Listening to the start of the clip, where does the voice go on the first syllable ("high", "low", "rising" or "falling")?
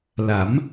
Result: rising